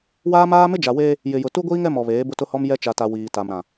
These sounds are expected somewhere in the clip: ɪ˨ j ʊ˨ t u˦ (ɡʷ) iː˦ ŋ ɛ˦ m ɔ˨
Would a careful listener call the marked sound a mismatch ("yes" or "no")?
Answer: no